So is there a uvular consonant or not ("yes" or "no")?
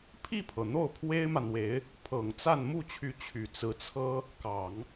no